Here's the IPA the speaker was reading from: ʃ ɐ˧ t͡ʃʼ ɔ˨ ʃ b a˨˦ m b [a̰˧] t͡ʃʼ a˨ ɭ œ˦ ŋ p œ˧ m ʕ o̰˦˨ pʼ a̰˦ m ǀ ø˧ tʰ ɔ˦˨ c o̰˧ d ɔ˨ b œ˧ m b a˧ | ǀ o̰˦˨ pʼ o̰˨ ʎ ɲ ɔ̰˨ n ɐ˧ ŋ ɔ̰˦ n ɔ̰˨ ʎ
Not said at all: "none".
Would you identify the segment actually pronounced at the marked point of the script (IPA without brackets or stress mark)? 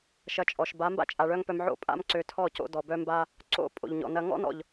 a̰˦